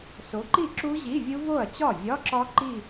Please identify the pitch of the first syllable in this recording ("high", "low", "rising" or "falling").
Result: rising